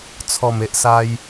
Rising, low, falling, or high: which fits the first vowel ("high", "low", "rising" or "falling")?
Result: low